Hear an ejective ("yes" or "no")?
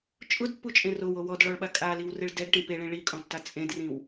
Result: yes